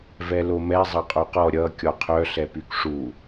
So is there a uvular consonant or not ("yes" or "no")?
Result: yes